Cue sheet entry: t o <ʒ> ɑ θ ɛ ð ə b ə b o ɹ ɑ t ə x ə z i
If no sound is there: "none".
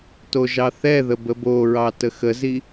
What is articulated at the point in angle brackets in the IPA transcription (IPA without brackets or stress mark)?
ʒ